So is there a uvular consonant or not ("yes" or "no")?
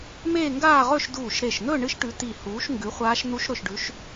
yes